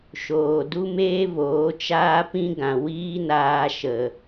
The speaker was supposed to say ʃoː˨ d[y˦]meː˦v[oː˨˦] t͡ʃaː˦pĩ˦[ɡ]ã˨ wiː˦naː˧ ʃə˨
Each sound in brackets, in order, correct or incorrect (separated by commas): incorrect, correct, correct